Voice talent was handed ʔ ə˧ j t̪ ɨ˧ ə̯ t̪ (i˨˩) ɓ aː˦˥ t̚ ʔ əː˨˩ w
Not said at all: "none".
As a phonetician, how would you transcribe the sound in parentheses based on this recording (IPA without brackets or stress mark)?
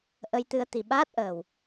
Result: i˨˩